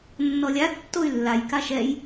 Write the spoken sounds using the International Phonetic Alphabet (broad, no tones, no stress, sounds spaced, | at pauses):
nː ɔ lʲ a tː o y̯ lː a j k a ʃ ɛ j